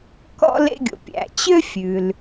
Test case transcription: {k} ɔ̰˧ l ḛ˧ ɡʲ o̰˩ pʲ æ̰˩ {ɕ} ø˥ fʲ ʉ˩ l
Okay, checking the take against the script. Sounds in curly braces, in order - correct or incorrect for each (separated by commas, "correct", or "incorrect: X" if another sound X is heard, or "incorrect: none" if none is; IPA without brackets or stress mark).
correct, incorrect: t͡ɕ